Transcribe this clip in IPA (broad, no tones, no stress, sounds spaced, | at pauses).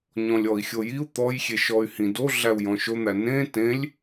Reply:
ɲ ɔ̃ lʲ ɔ i̯ xʲ o j i u̯ t̪ ɔ j xʲ e ʃ ɔ y̯ h ĩ d o ɮ æ u̯ j ɔ̃ ʃ o n̪ æ n ẽ t ẽ lʲ